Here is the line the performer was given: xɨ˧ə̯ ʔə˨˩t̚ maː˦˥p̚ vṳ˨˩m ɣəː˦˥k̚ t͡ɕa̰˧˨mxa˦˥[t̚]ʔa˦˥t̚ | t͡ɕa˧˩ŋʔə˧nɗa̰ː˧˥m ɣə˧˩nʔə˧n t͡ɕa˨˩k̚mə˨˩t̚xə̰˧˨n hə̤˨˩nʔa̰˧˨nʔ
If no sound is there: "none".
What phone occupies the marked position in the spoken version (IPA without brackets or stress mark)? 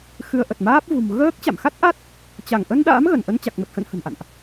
t̚